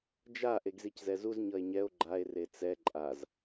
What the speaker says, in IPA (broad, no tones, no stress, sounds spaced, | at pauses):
d͡ʒ a ʔ e ɡ z i c z ɛ z u z ɲ ʌ e̯ ɲ ɛ o̯ ɡ͡ǃ a e̯ r e t͡s ɛ ǃʼ a z